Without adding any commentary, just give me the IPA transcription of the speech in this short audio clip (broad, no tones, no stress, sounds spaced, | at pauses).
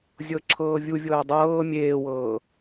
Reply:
zʲ ɤ ǁʰ ɤː vʲ u vʲ ɤː dˤ ɤː mʲ eː w ɤː